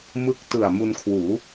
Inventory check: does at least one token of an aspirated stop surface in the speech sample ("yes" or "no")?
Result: yes